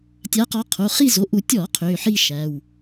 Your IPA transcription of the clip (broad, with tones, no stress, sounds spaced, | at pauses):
tʲ a˨˦ q ɔ˨˦ qʰ o˩˧˩ χ i˥˧ z o˩˧˩ ʔ u˧˩˧ tʲ ɔ˧˩˧ qʰ ø˩˧˩ ħ i˥˧ ʃ æ˩˧˩ w